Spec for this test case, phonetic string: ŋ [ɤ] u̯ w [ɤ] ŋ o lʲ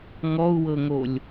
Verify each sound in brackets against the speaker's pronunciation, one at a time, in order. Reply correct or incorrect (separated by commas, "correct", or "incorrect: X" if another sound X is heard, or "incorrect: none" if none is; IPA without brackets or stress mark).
incorrect: ɔ, correct